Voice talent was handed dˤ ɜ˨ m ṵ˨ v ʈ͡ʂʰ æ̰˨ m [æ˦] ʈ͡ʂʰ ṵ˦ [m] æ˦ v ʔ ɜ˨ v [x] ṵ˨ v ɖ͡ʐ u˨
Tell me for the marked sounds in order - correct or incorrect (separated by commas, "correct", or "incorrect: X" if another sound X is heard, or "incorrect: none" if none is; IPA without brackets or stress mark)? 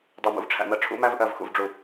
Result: incorrect: ɜ˦, correct, correct